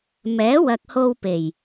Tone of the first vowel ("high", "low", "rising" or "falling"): rising